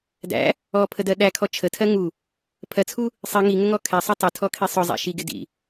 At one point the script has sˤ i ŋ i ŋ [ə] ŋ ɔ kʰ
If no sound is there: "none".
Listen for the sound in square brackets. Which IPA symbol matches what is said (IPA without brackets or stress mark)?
ə